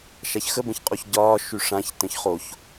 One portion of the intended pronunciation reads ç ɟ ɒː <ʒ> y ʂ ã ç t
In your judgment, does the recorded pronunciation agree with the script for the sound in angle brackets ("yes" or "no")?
no